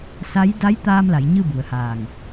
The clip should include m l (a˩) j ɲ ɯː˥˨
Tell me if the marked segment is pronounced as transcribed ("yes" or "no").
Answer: no